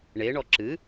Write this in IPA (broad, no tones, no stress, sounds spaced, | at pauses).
ɳ e ɳ ɔ ǁ ɨ